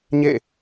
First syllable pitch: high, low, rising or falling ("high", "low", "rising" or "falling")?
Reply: falling